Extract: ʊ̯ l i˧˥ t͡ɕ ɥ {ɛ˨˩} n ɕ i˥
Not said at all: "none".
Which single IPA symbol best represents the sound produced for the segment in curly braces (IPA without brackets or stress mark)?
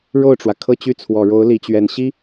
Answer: ɛ˨˩